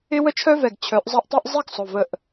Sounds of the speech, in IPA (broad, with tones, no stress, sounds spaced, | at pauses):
ɪ˥ w ə˥ t͡ʃʰ œ˥ v ɛ˧˩ ɡ t͡ɕʰ œ˨˥ ʔ zˤ ɐ˥˧ ʔ tˤ i˥ ʔ zˤ i˥ ɡ sˤ ʊ˩˧˩ v ə˧˩ ʔ